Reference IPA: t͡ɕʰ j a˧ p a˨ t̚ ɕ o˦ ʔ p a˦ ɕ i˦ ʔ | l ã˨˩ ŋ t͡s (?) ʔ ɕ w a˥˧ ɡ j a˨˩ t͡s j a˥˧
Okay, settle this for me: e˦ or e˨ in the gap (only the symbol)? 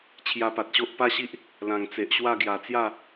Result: e˨